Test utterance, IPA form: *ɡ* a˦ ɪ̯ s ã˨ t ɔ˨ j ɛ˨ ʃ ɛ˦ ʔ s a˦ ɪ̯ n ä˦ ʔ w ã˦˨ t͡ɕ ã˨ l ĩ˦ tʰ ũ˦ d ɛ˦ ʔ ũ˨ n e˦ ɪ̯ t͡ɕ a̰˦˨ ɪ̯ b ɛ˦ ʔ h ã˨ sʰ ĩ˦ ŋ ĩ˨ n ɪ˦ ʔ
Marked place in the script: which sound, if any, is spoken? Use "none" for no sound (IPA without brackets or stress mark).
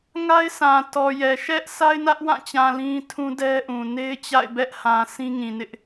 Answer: ŋ